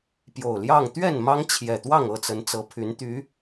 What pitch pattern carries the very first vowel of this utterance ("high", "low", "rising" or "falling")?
low